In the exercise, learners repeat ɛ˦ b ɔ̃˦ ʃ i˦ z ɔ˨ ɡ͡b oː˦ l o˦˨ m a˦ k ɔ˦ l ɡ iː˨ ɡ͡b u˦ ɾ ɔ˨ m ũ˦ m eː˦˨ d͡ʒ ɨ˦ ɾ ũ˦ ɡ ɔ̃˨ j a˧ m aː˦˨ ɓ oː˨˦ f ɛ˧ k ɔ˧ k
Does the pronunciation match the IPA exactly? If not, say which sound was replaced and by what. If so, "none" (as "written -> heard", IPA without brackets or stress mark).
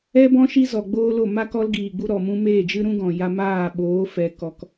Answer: none